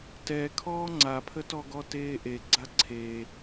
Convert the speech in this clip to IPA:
tɛkʰɔː ŋ͡ǀapʰətɔɡɔ teːʔe ɡ͡ǀaǀʰeː

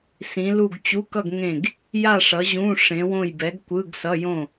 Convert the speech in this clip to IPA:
sĩ˨˥lu˥˨ɡ t͡ɕu˧˥˧kʌ˥˨ɡ ŋẽ˥˨ɡ | ja˥˨ ʂʌ˨˥ʑũ˧˥˧ ʂẽ˨˥wõ˥˨j bɛ˨˥ɡkʷɯ˧˥˧ɡsʌ˧˥˧jõ˥˨

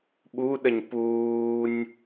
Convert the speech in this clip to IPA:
ɓuɗəɲ puːnʲ

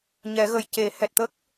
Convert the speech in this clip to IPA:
ɲɛ˨˩˦ɣə˨˩jce˨˩˦hɛ˨˩t̚ t̪ə˦˥k̚

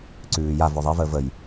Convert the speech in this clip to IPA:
ǀʉːjav œðˤi vəːvəj

